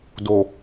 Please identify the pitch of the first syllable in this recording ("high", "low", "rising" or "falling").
low